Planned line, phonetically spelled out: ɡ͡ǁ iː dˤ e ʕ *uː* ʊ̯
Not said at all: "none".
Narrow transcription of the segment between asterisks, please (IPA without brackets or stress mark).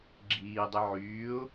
yː